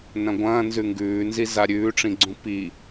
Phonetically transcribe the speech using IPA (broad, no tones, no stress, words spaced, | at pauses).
nɐ̃ɡʷɐ̃ː nzʉŋɡʉːnzi zaɾʲʉːʈ͡ʂĩɡ͡ǀũ pi